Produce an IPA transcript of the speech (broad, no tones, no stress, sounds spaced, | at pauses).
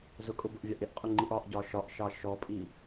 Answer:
z ʊ kʼ ʊ b ʊ ʔ vʲ ɑ ʔ ɪ ʔ qʼ ʊ ŋ͡ǃ i ʔ ɒ ʔ ɟ ɒ ʃ ɒ ʔ ʃ ɑ ʃ ɔ pʼ i